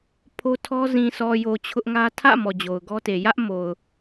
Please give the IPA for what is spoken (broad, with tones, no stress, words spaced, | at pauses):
pʰo˦tʰɔ˦ zĩ˨sɔ˨jo˨ t͡ɕʰʊ˦ʔŋä˦ tʰä̰˦˨ mɔ˨d͡ʑo˨ʊ̯ɡɔ˦te˨ jä˦ʔ mo˨ʊ̯